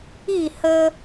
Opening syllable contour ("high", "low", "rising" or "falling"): falling